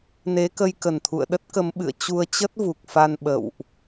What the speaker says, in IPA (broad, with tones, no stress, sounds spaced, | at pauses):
n e˨˦ k ə˧ j k ə˨˩ n t̪ʰ ṵ˧˨ ə̯ ɗ ə˦˥ t̚ k ə˨˦ m ɓ ɨ̰˧˨ ə̯ t͡ɕ u˧ ə̯ t͡ɕ ə˦˥ t̚ v u˨˩ k̚ f a˧ n ɓ ə̰˧˨ w ʔ